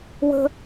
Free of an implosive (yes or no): yes